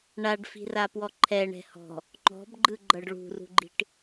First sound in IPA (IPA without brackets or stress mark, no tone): ɳ